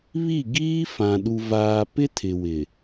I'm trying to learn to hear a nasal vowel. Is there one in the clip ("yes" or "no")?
yes